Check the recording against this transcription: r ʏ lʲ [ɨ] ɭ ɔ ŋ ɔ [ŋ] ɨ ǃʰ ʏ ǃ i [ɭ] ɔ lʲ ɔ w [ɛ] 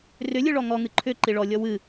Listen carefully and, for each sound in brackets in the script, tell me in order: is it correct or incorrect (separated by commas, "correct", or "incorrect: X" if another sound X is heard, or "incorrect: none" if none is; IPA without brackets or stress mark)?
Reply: correct, correct, correct, incorrect: ɨ